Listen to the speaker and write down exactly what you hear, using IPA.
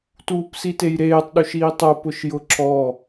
t uː p s i t e j ɾ eː tˤ ɗ u ʃ iː tˤ o p ʊ ʃ j ʊ ǁ ɔ

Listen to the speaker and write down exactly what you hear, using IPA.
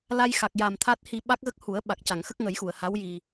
l a˧ j x a˨˩ k̚ j a˨˩ m t̪ʰ a˦˥ t̚ h i˧ ɓ a˦˥ k̚ ɣ ə˦˥ k̚ h u˨˩˦ ə̯ ɓ a˨˩ k̚ c a˨˩˨ ŋ x ə˦˥ k̚ ŋ ə˨˩˦ j x u˨˩˨ ə̯ h a˧˥ w j i˨˩

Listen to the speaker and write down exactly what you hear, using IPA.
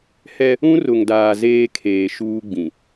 h ɛ˦ | ũ˦ r ʊ˨ ŋ d aː˨ z eː˦ kʰ eː˨ ʃ uː˦ ɡ͡b ĩ˨

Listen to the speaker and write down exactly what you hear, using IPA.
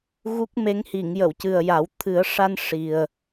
ɣ u˦˥ k̚ m e˧˥ ŋ h i˨˩˨ ŋ j ə˨˩˨ w c ɨ˨˩ ə̯ j a˨˩˦ w t̪ʰ ɨ˨˩˦ ə̯ ʂ a˧ n ʂ i˨˩ ə̯

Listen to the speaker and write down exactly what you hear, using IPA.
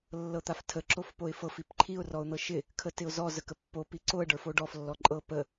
lː ɤ t̪ a f tʰ ə ǁ o f p o ɪ̯ f ɤ f i p ǃʰ i ʊ̯ r ɔ ʊ̯ n̪ ɤ ʃ ɪ | kʰ ə t ɪ ʊ̯ z ɔ z ə k ə pː o p i ǀ o ə̯ ɖ ə˞ f o ɖ ɔ f lː ɔ ǃʼ ɤ p ə

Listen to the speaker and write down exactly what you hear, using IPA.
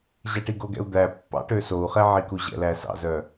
ʑ æ ʈ i ɡ o ɡ ɛ̰ u̯ d̪ æ pː ɑ̰ ʈ ø s o u̯ χ ɛ ʕ i k u ʑ ɛ̰ l æ s ɑ̰ z œ

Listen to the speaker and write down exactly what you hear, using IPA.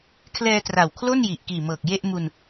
kʰ l ɛː˧ t r a˨˩ w kʰ l o˥˩ n j i˨˩ ʔ k iː˨˩ m ɤː˨˩ k̚ j e˥˩ ʔ m u˧ n

